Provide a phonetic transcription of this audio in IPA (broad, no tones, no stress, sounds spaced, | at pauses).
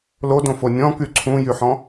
l o d õ f o nʲ ɔ̃ k y ǀʰ ũ j y ħ ɔ̃